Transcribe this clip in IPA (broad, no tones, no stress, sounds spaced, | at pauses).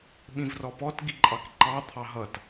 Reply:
ɓ ĩ v r ɔ p ɔ t ɡ i ǃʼ ɑ k ǃ ɑ t̪ʰ ɑ ɦ ʌ t